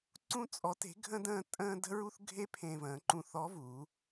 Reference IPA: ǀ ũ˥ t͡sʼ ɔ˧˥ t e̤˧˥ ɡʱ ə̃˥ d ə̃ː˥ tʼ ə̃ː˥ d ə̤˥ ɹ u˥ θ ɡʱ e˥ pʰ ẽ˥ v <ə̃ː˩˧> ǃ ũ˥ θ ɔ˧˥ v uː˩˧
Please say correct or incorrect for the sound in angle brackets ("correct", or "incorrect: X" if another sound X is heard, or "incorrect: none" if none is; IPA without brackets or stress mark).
incorrect: ə̃ː˧˥